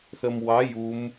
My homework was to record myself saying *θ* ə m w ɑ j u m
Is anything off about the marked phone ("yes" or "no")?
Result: no